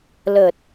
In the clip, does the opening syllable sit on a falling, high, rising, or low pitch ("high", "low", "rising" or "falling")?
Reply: low